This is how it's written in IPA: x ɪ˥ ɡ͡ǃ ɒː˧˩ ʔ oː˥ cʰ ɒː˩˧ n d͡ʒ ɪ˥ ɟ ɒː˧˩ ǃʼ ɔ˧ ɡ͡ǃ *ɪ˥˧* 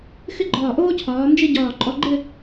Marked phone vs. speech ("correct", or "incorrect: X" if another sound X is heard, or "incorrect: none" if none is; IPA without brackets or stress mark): correct